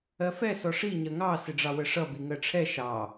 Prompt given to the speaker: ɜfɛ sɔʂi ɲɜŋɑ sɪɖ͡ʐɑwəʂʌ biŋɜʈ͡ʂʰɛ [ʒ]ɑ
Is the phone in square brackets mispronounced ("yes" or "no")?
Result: yes